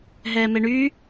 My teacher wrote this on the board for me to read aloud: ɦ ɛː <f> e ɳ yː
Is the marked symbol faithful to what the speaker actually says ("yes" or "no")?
no